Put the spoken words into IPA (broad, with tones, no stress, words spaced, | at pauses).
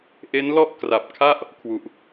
ʔe˦˥n lɔ˥˩ʔ kra˨˩p̚kʰa˥˩ʔ | kʰwu˨˩ʔ